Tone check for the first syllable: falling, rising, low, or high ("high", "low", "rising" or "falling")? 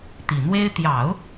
low